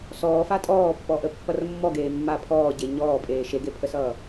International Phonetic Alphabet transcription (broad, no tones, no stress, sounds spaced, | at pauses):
s ɔː f a tʼ ɔː pː ɔ ʔ ə pː ʌ r mː ɔ ɡ eː mː a pʰ ɔː ɟ e ɲ ɔː pʼ eː ʃ e ɡ e pʰ ə s ʌː